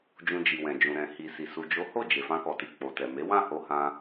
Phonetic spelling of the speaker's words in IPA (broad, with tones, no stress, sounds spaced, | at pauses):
d͡ʒ ũ˧ d͡ʒ i˨ w ɛ̃˨ d͡ʒ ũ˨ ɾ ɛ̃˨ h i˨ s i˨ s u˨ d͡ʒ o˨˦ h o˦˨ d͡ʒ e˨ f ã˧ k ɔ˨ t i˨ k͡p o˨ t ɛ˨ m e˨˦ w ã˦˨ h o˧ h ã˧